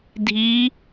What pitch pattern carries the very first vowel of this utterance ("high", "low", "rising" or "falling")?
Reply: rising